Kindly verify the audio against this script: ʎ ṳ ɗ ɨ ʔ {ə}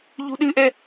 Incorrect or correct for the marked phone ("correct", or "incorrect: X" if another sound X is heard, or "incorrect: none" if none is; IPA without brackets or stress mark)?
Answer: incorrect: ɛ